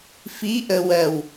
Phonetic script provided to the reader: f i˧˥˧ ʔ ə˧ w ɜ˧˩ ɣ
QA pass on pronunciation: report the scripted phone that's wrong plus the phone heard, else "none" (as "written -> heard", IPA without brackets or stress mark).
ɣ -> w